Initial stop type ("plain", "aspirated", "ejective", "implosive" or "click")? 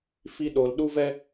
implosive